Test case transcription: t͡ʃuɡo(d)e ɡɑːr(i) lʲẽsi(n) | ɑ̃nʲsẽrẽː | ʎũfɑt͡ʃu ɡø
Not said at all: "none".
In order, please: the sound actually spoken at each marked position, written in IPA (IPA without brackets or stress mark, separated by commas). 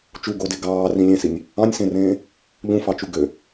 d, ĩ, nʲ